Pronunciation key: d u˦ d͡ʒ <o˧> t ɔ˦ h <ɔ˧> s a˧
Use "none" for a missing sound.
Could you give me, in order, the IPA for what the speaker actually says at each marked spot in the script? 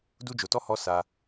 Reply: o˧, ɔ˦

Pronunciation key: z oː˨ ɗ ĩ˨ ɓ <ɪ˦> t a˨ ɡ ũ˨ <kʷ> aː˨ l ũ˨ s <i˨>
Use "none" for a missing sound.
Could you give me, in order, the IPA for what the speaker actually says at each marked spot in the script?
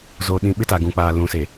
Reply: ɪ˦, k͡p, e˨

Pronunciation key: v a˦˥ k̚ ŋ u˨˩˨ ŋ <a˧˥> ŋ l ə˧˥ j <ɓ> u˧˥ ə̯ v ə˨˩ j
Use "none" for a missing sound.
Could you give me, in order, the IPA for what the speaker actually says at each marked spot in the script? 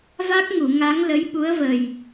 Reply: a˧˥, ɓ

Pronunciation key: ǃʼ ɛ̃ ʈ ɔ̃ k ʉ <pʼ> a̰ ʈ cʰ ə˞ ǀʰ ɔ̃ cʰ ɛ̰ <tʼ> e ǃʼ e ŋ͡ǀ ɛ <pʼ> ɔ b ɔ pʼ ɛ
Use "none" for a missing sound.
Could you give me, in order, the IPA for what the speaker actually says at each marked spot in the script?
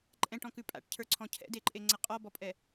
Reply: pʼ, d, qʼ

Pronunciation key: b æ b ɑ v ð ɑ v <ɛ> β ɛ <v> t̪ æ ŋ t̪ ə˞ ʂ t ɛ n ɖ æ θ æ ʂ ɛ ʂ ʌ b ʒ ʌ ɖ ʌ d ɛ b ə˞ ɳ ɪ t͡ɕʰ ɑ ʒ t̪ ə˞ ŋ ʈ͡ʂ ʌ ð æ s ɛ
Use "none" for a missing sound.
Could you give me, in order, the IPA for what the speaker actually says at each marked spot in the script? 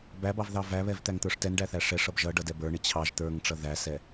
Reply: æ, v

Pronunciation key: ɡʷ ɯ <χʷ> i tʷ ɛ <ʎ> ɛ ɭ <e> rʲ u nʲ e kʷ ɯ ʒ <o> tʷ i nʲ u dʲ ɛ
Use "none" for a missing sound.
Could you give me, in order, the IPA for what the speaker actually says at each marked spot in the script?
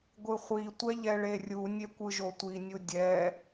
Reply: χʷ, ʎ, e, o

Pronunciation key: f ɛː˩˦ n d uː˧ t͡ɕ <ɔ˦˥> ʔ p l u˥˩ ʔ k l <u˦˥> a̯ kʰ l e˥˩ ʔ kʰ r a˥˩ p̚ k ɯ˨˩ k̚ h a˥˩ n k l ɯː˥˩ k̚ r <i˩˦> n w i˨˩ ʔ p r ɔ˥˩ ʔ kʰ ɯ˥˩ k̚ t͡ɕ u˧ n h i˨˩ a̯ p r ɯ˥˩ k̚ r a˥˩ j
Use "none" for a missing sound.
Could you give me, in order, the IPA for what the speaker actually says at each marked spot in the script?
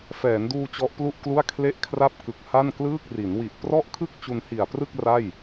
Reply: ɔ˦˥, u˥˩, i˩˦

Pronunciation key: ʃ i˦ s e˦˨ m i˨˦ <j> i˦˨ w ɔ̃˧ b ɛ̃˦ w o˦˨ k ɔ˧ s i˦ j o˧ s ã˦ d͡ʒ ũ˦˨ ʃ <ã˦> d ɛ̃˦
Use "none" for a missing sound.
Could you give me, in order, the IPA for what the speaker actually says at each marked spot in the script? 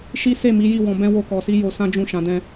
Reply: j, ã˨˦

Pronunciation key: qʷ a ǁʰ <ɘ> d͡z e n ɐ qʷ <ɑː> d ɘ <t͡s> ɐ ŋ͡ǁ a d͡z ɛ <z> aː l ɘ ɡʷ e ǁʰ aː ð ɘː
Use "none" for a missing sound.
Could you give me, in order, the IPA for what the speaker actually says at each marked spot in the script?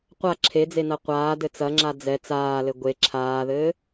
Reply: e, aː, t͡s, t͡s

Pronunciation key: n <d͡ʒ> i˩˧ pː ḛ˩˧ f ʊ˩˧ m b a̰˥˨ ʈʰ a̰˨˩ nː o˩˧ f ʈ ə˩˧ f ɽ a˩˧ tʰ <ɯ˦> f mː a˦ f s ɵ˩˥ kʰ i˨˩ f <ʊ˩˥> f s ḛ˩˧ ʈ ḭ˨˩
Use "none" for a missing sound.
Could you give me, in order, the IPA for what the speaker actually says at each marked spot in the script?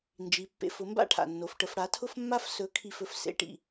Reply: d͡ʒ, ʊ˦, ɵ˩˥

